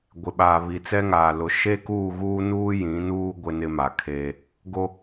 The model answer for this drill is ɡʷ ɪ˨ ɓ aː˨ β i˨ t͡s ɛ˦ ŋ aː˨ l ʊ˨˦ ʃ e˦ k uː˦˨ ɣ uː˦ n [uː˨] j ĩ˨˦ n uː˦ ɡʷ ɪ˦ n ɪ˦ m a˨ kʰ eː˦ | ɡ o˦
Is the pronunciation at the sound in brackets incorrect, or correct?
incorrect